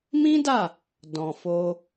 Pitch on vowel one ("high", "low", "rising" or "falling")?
high